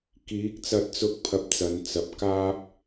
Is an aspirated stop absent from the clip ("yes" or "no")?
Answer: no